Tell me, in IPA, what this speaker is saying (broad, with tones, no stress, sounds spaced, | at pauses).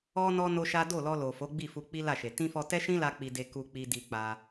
ɔ˧ n ɔ˧ n o˦ ʃ a˦ d o˦˨ l ɔ˧ l o˨ f o˨˦ ɡ͡b i˦˨ f u˧ k͡p i˦ l a˦˨ ʃ e˨ t ĩ˧ f ɔ˧ t ɛ˦ ʃ ĩ˦ l a˦ k͡p i˧ d e˧ k u˧ k͡p i˧ d i˧ k͡p a˧